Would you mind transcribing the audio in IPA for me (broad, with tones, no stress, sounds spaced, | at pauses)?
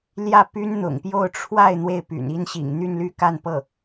l j ä˥˩ p y˥ n n̪ ʊ̰˨˩ ŋ p j o˥˧ ʊ̯ ʈ͡ʂʰ w a˥˧ ɪ̯ n̪ w e˥˩ ɪ̯ p y̰˨˩ n i˥ n ɕ ḭ˨˩ ŋ n̪ y˥˧ n l y˥˧ k a˥˧ n p ɤ˥˩